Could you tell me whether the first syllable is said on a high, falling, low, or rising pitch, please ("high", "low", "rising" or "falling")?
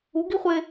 rising